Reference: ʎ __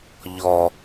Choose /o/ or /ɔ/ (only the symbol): ɔ